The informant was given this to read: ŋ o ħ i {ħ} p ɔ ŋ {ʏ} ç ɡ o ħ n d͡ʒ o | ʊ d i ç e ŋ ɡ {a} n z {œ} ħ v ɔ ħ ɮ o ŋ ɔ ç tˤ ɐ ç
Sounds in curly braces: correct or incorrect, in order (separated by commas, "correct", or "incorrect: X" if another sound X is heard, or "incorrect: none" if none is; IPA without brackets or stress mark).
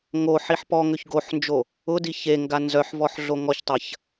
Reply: correct, correct, correct, correct